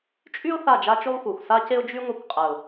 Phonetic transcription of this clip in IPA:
t͡ʃʼ y˦ ʊ̯ θ a˦˨ d͡ʒ a˦ t͡ʃ y˦ lˠ xʷ œ˨ xʷ s a˦ c e˦ ʊ̯ d͡ʒ y˦ ŋʷ e˦˨ kʷ qʼ ɛ˨ ʊ̯

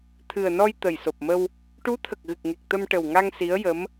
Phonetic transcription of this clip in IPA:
t̪ʰ ɨ˨˩ ə̯ n ɔ˧ j t̪ ə˨˩ j s o˨˩ p̚ m ə˧ w | ʈ u˧˥ t̪ʰ ə˨˩ k̚ ɣ ɨ˨˩ k̚ ŋ e˨˩ k̚ t̪ ə˧ m ʈ ə˨˩ w ŋ a˧ ŋ s i˧˥ ə̯ j ə˧˥ m

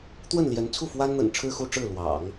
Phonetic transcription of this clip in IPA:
t̪ w ə˥˩ n l j ɛ˧˥ n t͡sʰ u˥˩ f w a˥ n n̪ ə̰˨˩ n ʈ͡ʂʰ ɻ̩˥˧ x u˥˧ ʈ͡ʂ ɻ̩˥˩ l w ɑ̰˨˩˦ ŋ

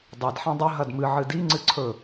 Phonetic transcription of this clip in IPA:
dˤ e d ħ ẽ dˤ ɵ ɦ ɐ d m ɨ ʕ ɨ d i ŋ͡ǀ ɨ ǀʰ ɵ

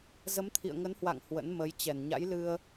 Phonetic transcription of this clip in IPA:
z ə˨˦ m t̪ʰ ḭ˧˨ ə̯ ŋ ə˨˦ n h w a̰˧˨ ŋ h w ə̰˧˥ n m ə˨˦ j t͡ɕ ɛ˧˩ n ɲ a̰˧˥ j l ɨ˧ ə̯

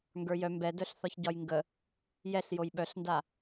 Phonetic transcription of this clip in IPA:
ŋ ɡ ə˞ j œ m b ɛ d œ ɬ θ ɒ ç ɟ ɒ j ŋ ɡ ə | j ɛ ɬ j o j ɓ œ ɬ n d a

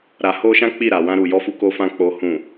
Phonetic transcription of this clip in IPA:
ɾ a˨ h o˧ ʃ ã˦ k͡p i˦˨ ɾ a˨ w ã˧ ɾ u˨ j ɔ˧ f u˧ k o˧ f ã˧ k͡p o˨ h ũ˨

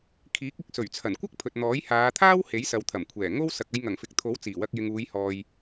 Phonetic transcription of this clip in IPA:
kʰ iː˨˥ k̚ ɪ˨˥ k̚ s ɵ˨˩ ɥ t͡sʰ ɐ˨˩ n kʷ ɐ˥ k̚ pʰ ɵ˨ t̚ n̪ ɔː˨˥ j h aː˨˧ t̪ʰ aː˥ w h e˨˥ j s ɐ˨ w t̪ʰ ɐ˨˩ m kʷʰ ɛː˨˩ ŋ o˥ w s ɐ˨ k̚ ɐ˧ j ŋ ɐ˨˩ ŋ f ɪ˨ k̚ t̪ʰ o˨˥ w t͡s iː˨˩ w ɐ˧ k̚ j ɪ˨ ŋ uː˨˧ j h ɔː˨ j

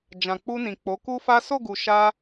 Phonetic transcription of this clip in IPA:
d͡ʒ ã˨ k͡p u˧ n ĩ˨ k͡p o˨˦ k u˦ f a˦ s o˦˨ ɡ u˨ ʃ a˧

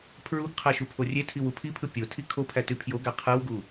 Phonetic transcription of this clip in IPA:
pʰ ɹ u ɡ qʰ æ ʃ u pʰ o rʲ e tʰ i w u pʰ i pʰ ɯ pʲ o tʰ i kʰ o pʰ æ t y pʰ j o ɡ æ qʰ ɯ w ɡ u

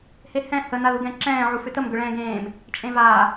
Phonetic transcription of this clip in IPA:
h e h ɛ̃ h ə n a l u ɡ ɛ̃ ǁ ɛ̃ː ʕ u f ʏ t ə m ɡ ʏ ɭ ɛ̃ː ɡ ẽː m | t͡ʃʼ ẽ v aː

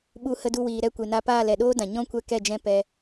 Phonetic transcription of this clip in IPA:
ɓ u˧ h ə˧ d u˧ w iː˨ ɾ ɛ˧ kʷ e˨ n a˧ p aː˦˨ l ɛ˨ ɗ oː˦ d ã˨ ɲ ɔ̃˦ kʷ ɛ˦ k ɛ˦˨ d͡ʒ ɛ̃˦ p ɛ˧

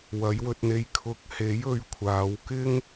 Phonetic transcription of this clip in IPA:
w ɐ˨˥ j w ɵ˧ t̚ n̪ e˧ j kʰ ʊ˨˥ k̚ h e˨˥ j ɵ˧ ɥ kʷʰ aː˨˧ w k ɪ˥ ŋ

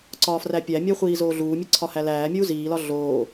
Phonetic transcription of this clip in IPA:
ǀ ɒː f r æ pʲ æ mʲ æ χʷ iː z oː ɮ uː mʲ e ǀʰ ɒ h æ l æː mʲ uː z iː l ɒ ɮ oː

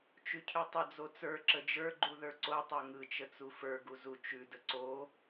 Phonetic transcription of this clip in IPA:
t͡ʃ ʉ cʰ ʉ tˤ ə d͡z o t͡s ə˞ ǁ ə d͡ʒ ə˞ ɡ͡ǃ u ð ə˞ ǀ o tˤ ə˞ ŋ ɯ t͡ʃ ə t͡s u f ə˞ ɡ u z u t͡ʃ ʉ d ə ǀ o

